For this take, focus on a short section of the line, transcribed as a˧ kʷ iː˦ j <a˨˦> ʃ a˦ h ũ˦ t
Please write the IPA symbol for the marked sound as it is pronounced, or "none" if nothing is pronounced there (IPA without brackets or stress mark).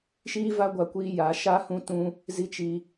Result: a˨˦